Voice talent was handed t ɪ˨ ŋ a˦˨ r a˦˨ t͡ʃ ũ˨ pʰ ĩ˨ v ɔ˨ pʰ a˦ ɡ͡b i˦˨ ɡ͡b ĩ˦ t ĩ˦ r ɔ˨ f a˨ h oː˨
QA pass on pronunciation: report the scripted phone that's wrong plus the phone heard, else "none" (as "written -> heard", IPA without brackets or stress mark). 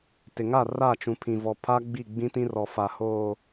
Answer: none